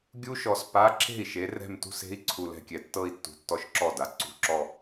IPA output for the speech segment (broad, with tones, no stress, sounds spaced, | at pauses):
ɡʲ u˦˥ ʃ ɔ˨˦ s p a˧˥˧ ǁ e̤˥˩ i̯ ʃ e˨˦ r ɛ̤˥˧ m t ṳ˥˧ s e̤˦˥ i̯ ǀʰ u˨ l ɛ̤˥˧ kʲ ɛ˨ tː ɤ˥˧ i̯ tː ṳ˨ tː ɔ˦˥ ʃ ǁ ɔ˥˩ d a˨ ǀ ṳ˧˥˧ ǁ ɔ˥˧